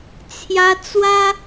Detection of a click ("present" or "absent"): absent